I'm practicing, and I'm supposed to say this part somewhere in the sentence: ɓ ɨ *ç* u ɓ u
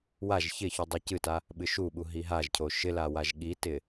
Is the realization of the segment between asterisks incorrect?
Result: yes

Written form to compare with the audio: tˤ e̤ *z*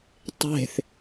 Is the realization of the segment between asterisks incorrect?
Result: yes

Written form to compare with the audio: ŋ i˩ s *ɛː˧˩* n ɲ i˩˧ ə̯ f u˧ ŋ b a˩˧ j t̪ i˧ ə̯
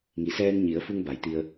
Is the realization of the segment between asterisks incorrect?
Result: yes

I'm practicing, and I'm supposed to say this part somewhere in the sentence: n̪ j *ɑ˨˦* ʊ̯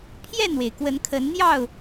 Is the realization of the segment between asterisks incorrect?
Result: yes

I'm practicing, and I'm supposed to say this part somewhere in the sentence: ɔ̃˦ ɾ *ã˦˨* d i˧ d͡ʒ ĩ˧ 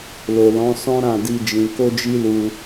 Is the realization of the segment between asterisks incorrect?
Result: no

